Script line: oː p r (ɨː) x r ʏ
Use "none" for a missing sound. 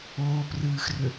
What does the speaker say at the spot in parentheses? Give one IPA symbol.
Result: ɨː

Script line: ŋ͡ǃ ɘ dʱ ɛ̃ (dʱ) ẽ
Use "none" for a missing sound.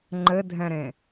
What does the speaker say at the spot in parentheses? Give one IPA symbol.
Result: ɾ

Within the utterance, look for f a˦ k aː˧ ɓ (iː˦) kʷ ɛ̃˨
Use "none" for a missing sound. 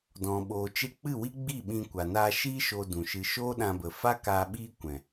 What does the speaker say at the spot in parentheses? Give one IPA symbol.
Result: iː˦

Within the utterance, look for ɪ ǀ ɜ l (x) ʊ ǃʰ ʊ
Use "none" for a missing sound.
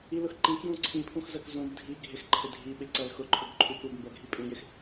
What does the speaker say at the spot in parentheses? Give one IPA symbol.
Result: x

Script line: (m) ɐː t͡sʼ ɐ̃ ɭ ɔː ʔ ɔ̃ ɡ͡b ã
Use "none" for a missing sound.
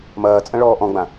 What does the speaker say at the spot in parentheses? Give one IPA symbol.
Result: m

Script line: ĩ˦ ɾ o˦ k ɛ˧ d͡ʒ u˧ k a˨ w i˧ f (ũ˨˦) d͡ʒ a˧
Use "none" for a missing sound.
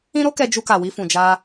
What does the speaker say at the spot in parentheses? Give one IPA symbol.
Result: ũ˨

